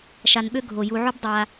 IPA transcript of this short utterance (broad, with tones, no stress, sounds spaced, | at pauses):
ʃ a˨ n ɓ ø˦ ɡʱ o˩ j u˩ ʕ o˦ b dˤ a˨